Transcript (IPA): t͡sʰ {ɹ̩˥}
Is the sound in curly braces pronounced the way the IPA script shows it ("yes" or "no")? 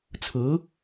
no